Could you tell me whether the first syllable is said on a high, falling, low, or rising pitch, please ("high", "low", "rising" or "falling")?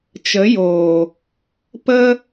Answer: rising